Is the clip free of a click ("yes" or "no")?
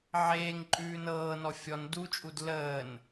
no